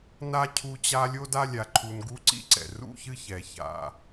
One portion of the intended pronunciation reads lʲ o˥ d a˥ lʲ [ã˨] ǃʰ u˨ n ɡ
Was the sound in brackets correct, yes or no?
no